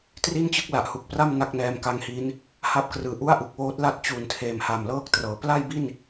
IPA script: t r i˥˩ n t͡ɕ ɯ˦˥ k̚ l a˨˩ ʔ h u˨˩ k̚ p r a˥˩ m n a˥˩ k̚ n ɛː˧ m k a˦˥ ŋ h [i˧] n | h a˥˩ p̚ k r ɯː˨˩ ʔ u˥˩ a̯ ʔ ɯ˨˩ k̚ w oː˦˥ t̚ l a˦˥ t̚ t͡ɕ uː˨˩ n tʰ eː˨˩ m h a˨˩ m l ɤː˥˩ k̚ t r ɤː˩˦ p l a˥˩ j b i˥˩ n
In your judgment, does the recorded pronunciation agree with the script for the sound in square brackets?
no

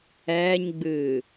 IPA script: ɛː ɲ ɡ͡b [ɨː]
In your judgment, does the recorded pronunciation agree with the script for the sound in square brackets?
yes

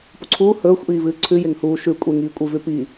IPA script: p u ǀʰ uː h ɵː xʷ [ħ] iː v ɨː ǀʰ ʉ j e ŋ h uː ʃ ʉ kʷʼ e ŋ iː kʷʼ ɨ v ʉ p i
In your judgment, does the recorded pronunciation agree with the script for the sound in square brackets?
no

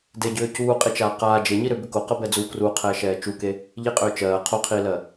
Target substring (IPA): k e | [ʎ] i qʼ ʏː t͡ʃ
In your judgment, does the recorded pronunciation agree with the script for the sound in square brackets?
yes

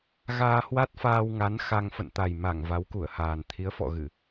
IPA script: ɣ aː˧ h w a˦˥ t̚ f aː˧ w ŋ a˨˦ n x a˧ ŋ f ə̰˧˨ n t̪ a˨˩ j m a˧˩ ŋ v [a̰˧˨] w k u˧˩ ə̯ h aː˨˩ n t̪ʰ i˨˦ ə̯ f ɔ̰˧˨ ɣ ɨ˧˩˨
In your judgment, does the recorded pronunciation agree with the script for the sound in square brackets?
no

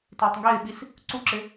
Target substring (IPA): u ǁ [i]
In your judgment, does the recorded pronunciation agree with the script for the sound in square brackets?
no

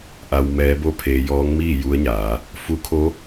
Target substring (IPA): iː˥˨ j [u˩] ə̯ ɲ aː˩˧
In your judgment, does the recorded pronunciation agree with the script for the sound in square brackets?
no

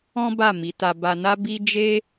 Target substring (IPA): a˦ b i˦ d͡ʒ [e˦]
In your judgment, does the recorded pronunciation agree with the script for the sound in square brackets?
yes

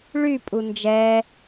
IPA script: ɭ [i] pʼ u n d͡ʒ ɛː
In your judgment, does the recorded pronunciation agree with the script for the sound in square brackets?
no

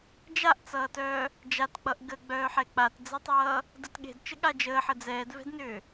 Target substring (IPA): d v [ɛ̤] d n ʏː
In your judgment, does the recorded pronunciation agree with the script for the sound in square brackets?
yes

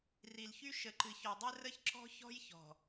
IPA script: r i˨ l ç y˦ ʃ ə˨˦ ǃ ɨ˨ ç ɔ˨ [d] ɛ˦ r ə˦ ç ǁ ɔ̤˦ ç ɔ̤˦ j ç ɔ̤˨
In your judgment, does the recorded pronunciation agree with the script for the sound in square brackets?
no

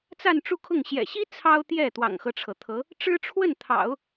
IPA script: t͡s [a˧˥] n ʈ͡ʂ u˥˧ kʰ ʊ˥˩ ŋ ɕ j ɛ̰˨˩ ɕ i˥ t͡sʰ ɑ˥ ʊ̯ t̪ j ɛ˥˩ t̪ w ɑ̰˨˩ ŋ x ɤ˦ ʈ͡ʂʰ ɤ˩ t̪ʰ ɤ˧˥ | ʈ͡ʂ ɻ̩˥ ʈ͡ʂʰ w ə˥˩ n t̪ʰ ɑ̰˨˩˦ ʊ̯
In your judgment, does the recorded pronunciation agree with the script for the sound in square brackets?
no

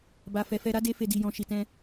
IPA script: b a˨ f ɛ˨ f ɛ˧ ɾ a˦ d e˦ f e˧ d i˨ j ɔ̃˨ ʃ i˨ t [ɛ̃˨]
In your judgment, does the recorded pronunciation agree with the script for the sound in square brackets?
no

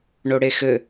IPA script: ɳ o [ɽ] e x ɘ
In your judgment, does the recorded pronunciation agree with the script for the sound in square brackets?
yes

